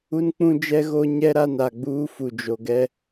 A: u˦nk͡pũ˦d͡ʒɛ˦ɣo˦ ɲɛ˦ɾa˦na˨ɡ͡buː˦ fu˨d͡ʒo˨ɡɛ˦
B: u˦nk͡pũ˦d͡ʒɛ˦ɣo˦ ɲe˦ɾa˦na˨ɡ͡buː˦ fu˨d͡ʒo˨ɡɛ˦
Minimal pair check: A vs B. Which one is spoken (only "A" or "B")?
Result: A